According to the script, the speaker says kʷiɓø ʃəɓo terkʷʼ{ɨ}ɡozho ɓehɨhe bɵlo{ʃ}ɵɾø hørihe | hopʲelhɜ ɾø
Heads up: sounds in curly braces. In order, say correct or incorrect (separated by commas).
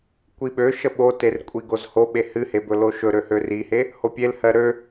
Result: incorrect, correct